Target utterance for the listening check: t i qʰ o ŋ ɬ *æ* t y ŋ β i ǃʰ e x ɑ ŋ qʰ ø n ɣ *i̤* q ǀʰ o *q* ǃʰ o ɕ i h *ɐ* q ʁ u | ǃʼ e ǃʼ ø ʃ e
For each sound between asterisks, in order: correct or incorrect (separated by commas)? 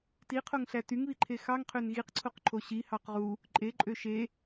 correct, incorrect, correct, incorrect